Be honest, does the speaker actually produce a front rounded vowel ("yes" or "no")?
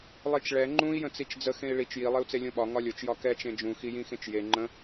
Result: no